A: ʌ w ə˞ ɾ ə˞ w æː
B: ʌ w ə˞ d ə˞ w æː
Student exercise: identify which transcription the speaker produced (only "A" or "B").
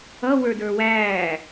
B